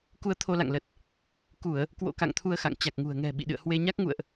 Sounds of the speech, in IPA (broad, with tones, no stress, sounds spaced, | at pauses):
k u˧ ə̯ t̪ʰ o˧ l a̰˧˨ ŋ l ə˨˩ t̚ | k u˧˩˨ ə̯ | k w o̰˧˥ k a̰˧˨ ŋ t̪ʰ u˧ ə̯ x a̰˧˨ ŋ t͡ɕ a˨˩ k̚ ŋ ṳ˨˩ ə̯ ŋ ɛ̤˨˩ ɓ ḭ˧˨ ɗ ɨ̰˧˨ ə̯ h w e˧ ɲ a˦˥ k̚ ŋ ṵ˧˨ ə̯ ʔ